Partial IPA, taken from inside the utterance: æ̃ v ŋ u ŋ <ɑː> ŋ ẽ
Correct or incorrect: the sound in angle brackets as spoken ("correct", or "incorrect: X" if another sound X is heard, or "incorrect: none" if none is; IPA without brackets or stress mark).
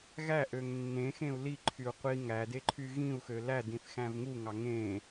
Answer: incorrect: ɑ